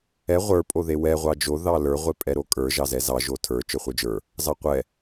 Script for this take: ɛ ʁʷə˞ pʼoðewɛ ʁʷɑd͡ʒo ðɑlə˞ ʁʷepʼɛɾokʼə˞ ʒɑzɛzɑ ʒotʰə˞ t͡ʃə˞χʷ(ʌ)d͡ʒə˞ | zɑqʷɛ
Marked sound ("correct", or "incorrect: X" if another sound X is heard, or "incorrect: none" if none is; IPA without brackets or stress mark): incorrect: ə˞